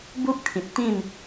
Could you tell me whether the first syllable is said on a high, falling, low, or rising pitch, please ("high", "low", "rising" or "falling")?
high